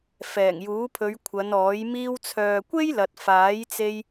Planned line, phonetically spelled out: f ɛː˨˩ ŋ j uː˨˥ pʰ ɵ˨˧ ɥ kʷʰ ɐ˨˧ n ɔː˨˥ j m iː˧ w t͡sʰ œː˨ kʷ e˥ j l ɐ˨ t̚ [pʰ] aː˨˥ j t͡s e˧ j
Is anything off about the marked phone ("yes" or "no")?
yes